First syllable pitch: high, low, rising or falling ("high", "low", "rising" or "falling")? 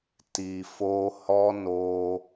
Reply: low